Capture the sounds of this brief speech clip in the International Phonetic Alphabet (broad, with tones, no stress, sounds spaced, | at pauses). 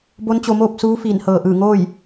b o˧˥ n t͡ɕ o˧ m oː˥˨ p̚ s uː˧˥ f iː˧˩ n h ɤː˧˩ ʔ ɯː˧˩ ŋ oː˥˨ j